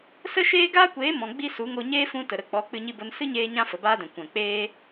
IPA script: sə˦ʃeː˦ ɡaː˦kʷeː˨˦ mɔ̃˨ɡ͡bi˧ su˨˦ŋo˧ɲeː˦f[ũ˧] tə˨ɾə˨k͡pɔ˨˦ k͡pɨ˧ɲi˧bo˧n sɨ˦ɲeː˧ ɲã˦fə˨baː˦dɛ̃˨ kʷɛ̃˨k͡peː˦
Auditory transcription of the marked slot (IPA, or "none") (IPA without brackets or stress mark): ũ˧